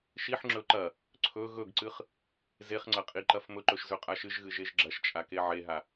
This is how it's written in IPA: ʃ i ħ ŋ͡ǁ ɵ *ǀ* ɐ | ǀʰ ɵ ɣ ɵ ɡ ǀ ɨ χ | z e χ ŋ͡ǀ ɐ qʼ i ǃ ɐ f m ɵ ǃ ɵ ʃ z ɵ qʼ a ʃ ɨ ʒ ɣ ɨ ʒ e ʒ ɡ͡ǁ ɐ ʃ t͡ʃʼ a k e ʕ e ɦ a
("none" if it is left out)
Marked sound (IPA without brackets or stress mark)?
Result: ǃ